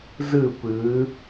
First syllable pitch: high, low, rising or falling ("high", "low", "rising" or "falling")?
falling